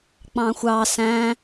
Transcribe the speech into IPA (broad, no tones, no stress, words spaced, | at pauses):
k͡pɑ̃xʷɑ sæ̃